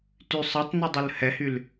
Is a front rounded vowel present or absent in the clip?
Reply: present